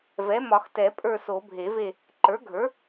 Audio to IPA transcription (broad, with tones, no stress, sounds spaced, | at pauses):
v ɛ˩˥ m ɒ˨˩˦ x t ɛ˨˩˦ pʼ ə˞˦˨ s o˨˩˦ bʱ e˨˩˦ v e˦˨ | ǃ ə˞˩˥ ɡʱ ə˞˩˥